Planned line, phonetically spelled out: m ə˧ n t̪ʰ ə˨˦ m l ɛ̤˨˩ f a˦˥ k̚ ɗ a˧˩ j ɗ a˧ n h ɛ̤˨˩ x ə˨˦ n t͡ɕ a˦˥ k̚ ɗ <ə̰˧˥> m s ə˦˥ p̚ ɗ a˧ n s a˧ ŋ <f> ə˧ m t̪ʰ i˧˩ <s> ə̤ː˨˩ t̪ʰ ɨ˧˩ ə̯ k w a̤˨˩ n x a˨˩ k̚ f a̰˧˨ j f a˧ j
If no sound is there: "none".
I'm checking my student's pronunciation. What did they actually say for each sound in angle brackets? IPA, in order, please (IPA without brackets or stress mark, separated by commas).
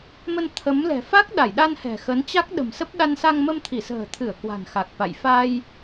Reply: ə̤˨˩, m, s